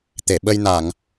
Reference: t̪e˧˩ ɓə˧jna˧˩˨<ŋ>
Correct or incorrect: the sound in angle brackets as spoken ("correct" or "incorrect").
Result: correct